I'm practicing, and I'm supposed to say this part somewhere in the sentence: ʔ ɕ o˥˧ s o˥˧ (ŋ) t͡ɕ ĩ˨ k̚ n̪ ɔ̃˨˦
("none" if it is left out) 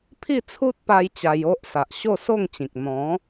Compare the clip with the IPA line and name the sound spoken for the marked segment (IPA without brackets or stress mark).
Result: ŋ